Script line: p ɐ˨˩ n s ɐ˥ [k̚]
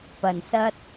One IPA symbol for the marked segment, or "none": t̚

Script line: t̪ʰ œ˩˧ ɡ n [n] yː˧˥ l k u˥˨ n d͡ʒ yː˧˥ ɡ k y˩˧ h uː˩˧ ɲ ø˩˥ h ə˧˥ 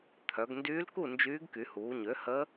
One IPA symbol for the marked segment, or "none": d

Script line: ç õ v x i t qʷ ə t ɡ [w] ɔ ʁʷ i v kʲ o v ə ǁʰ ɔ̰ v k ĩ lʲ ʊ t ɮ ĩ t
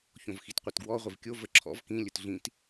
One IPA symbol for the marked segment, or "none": w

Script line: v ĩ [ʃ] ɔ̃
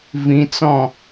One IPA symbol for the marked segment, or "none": t͡s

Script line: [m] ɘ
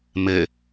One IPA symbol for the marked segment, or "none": m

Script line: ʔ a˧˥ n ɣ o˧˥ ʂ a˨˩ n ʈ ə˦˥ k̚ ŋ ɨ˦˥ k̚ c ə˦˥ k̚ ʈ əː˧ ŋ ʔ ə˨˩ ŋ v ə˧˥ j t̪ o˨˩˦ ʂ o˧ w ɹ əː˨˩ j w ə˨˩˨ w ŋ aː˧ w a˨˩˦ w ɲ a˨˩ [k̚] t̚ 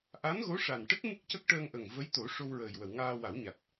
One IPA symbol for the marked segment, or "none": none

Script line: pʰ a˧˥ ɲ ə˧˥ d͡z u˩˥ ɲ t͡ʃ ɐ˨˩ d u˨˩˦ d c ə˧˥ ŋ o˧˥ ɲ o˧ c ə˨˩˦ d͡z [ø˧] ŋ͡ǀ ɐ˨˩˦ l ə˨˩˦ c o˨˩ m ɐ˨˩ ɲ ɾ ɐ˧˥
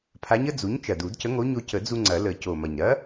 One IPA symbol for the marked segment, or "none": u˧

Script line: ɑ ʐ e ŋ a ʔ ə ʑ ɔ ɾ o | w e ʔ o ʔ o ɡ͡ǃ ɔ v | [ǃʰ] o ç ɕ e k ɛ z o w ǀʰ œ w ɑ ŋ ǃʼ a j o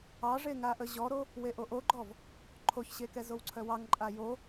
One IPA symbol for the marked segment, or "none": ǃʰ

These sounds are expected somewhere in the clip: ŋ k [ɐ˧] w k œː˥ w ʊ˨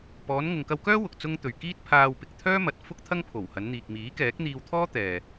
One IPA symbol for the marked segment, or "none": ɐ˧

